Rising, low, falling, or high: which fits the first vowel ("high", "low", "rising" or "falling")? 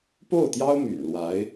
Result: falling